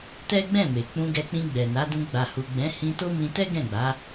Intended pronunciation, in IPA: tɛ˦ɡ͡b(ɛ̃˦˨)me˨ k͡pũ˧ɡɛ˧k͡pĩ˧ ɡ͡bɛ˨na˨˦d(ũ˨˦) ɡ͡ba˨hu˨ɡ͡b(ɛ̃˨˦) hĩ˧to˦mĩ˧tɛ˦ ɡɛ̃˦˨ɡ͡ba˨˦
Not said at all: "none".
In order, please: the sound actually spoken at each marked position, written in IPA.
ɛ̃˦˨, ũ˧, ɛ̃˨˦

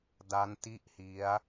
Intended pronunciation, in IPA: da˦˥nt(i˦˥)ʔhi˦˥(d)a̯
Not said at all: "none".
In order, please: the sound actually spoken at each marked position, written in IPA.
i˥˩, none

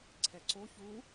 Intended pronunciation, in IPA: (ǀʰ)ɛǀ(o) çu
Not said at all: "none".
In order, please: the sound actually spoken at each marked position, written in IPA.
ǀʰ, o

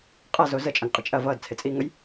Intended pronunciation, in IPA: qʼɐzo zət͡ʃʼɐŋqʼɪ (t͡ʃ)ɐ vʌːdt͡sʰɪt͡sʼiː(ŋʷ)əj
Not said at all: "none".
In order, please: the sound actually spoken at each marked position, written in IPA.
t͡ʃʼ, ŋ

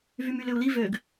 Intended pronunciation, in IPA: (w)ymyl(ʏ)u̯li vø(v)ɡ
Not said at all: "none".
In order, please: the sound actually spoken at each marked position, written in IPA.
v, ʏ, none

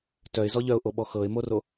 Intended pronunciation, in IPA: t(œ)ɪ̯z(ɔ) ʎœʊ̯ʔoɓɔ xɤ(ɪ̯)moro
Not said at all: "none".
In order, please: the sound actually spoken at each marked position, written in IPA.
œ, ɔ, ɪ̯

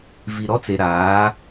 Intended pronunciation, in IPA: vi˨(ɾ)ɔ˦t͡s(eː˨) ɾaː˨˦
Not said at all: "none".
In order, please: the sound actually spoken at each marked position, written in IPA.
ɾ, e˨

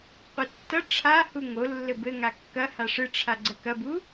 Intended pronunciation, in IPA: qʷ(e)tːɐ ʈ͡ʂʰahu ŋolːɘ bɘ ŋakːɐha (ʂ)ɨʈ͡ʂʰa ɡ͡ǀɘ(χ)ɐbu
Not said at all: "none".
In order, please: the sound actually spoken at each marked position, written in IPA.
ɘ, ʂ, k

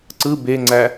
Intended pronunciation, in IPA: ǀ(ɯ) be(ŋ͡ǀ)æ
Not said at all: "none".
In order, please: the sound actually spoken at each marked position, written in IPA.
ɯ, ŋ͡ǀ

